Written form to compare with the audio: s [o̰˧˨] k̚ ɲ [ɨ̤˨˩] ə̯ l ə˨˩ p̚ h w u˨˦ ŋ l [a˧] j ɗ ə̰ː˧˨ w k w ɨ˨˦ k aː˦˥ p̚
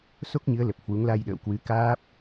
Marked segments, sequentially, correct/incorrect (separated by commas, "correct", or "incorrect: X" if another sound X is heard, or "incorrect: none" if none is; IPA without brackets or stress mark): incorrect: o˦˥, incorrect: ɨ˨˦, correct